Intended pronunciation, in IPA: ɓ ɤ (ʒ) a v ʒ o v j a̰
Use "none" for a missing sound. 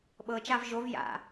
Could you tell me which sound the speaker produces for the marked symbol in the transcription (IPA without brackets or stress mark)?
t͡ʃ